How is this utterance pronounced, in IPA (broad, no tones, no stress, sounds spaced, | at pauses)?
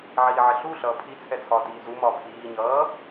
ʕ iː ʕ ɪ ɬ u ɬ ʌː pʰ i t͡sʰ ɛ t͡sʰ ɒː t iː z u m ɒː pʰ iː ɲ ʌː